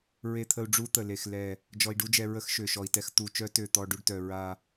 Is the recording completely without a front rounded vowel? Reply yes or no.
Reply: no